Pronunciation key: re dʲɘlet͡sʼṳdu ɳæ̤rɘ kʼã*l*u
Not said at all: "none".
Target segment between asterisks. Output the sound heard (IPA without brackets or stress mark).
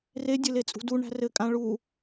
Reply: ɭ